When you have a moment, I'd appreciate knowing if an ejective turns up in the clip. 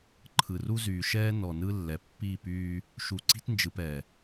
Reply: no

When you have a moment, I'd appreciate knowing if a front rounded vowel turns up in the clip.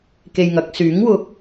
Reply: yes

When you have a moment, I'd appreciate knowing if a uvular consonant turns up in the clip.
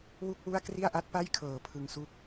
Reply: no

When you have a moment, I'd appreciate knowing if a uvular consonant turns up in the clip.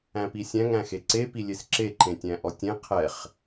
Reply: yes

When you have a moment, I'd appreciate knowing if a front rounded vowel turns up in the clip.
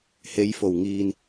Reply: no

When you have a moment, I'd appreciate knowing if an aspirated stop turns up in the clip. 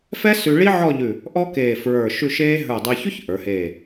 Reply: no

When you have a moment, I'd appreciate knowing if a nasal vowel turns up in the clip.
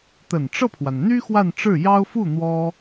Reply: no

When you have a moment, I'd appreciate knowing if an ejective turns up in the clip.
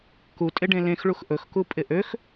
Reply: yes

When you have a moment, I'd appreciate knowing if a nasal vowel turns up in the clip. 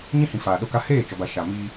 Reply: yes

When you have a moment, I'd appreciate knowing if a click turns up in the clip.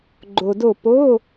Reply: yes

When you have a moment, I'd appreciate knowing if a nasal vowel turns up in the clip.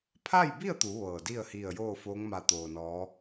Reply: no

